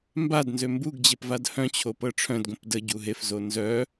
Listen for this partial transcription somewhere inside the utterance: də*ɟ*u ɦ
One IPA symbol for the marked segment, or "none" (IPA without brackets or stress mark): ɟ